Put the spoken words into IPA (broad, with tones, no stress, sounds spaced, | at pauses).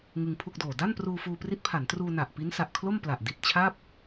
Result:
ŋ ɯ˧ ŋ pʰ u˥˩ k̚ d oː˨˩ d a˥˩ n p r uː˧ f uː˧ p r i˦˥ t̚ pʰ a˩˦ n t r uː˧ n a˨˩ ʔ p i˦˥ n s a˨˩ ʔ kʰ l o˥˩ m p l a˨˩ ʔ d i˨˩ t̚ t͡ɕʰ a˥˩ p̚